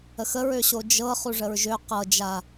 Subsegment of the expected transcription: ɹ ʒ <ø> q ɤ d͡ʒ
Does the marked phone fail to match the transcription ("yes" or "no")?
no